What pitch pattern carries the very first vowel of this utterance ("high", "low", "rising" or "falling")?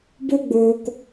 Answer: high